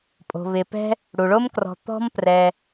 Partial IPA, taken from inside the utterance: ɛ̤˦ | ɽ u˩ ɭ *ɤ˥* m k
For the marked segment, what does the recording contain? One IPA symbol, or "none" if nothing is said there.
o˥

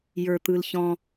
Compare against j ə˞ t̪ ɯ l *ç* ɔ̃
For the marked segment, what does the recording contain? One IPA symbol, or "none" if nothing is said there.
ç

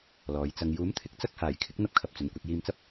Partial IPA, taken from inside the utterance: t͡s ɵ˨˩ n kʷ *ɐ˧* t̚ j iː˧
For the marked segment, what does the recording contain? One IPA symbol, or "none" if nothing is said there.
ɐ˧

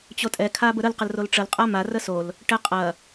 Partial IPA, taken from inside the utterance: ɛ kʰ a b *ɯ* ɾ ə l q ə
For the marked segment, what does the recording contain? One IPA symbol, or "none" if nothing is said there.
ə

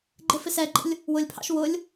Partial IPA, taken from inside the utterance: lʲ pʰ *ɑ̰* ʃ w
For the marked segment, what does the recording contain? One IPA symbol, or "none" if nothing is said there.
ɑ̰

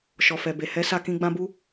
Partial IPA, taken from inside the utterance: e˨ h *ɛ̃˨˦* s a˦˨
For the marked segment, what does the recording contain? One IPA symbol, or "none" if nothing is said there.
ɛ˨˦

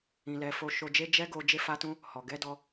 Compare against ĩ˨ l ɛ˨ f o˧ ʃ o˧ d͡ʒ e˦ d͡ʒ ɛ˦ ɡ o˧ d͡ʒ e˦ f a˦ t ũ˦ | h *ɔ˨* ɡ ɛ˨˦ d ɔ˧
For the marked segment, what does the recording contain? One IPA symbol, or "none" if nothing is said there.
ɔ˨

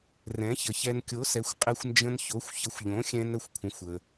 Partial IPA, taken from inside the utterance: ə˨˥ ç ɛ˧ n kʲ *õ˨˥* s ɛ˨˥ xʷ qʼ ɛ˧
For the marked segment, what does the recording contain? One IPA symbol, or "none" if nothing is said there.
o˨˥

